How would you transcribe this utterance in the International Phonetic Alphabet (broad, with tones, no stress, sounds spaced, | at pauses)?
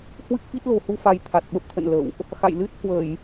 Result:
h w ɨ˦˥ k̚ f i˦˥ t̚ l o̤˨˩ h u˧ f a˧ j t̪ʰ a˨˩ t̚ ɓ ə˦˥ p̚ t̪ʰ ə̰˧˨ n l ə̰˧˨ w ʔ | x a̰˧˨ j l ɨ˦˥ t̚ h w ə˧˩˨ j